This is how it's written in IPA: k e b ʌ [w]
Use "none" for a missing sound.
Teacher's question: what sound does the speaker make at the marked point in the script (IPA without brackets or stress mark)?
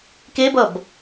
b